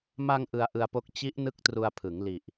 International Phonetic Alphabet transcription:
m a˧ ŋ ʔ ɯ˧ a̯ ʔ ɯ˧ a̯ p o˦˥ k̚ t͡ɕ i˦˥ ʔ n ɯ˦˥ k̚ t r u˧ a̯ pʰ ɯ˩˦ ŋ l i˨˩ ʔ

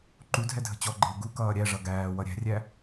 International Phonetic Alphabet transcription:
ǃ u dʱ ɛ dʱ ə̤ t͡ɕ ɔ ɡ͡ǃ ɪː ɡ u k ʌː ɾʲ æ ʐ ʌ ɡ æː w ʌ ɾʲ æ̤ rʲ æ

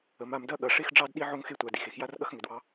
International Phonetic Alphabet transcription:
ə˩˧ m a˩˧ m d ɐ˦ ɠ ɐ˩˧ ʂ e˦ x ɖ͡ʐ ɑ˦ d ɗ i˦ ʕ o˦ ŋ x e˦ tʷ a˩˧ d i˩˧ x e˩˧ x j a˦ r ɠ ɐ˦ x ŋ ʏ˩˧ d w ɑ˦

